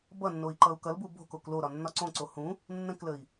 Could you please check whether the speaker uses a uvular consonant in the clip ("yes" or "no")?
no